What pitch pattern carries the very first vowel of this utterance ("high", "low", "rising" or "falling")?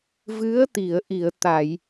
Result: rising